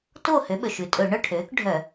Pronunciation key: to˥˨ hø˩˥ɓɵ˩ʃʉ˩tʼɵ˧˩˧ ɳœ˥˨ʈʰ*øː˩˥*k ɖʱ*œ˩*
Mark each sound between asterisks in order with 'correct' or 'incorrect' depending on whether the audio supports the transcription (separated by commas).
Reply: correct, incorrect